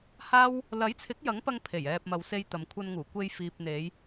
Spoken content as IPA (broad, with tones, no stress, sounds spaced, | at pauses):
h aː˥ w | l ɐ˨˥ j t͡sʰ ɪ˨˥ k̚ j ɐ˨˥ ŋ p ɐ˧ ŋ pʰ e˨˩ j ɛː˨ p̚ m ɐ˨˧ w s e˧ j t̪ ɐ˨ m kʷʰ ɐ˧ n ŋ uː˨˩ kʷ e˧ j f iː˨ p̚ n̪ e˨˧ j